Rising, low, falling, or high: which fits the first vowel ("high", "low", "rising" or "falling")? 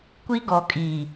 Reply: high